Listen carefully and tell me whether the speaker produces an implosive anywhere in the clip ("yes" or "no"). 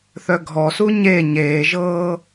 no